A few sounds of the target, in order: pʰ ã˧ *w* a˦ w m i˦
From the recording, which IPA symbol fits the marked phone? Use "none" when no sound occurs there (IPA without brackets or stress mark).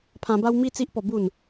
b